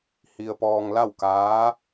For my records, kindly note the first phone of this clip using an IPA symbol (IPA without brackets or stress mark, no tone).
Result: h